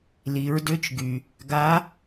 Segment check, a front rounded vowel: present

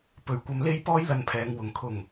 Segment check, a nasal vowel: absent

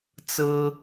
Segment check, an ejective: absent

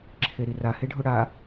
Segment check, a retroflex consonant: present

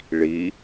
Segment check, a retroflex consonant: present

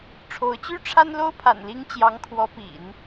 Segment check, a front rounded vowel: present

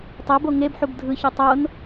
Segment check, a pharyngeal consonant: present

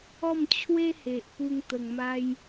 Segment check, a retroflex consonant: absent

